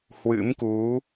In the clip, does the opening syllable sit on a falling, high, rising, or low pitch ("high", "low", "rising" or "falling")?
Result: rising